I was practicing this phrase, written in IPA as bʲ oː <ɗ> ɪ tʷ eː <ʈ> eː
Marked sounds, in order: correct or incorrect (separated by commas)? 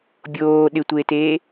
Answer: correct, incorrect